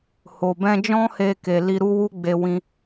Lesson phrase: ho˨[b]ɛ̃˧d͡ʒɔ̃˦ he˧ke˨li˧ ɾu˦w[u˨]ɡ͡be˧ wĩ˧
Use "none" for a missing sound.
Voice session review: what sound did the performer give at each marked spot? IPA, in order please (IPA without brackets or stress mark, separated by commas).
b, u˦